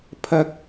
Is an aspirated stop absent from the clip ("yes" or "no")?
no